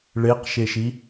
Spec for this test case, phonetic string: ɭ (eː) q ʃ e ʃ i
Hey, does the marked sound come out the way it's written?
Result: no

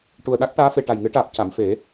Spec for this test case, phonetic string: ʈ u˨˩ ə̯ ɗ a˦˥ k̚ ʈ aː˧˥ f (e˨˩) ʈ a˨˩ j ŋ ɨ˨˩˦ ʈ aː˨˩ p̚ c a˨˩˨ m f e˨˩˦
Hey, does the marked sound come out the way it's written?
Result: yes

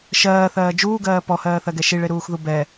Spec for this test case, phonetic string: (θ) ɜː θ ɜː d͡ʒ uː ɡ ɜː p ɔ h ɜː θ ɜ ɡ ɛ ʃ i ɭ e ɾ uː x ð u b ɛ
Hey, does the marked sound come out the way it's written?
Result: no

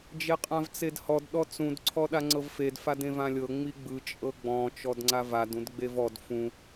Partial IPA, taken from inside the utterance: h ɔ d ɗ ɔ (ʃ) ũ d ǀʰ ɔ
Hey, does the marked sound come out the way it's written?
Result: no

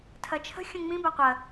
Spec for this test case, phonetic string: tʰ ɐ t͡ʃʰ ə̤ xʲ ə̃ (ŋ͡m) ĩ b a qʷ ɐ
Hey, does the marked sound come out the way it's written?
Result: yes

